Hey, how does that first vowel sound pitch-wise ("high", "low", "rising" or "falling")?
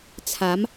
rising